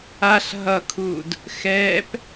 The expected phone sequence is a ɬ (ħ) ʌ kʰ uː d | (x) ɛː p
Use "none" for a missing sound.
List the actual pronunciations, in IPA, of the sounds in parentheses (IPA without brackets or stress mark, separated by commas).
ɦ, x